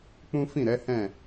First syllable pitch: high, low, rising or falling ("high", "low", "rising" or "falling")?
high